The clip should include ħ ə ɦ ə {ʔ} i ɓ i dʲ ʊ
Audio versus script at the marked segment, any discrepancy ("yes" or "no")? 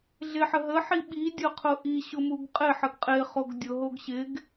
yes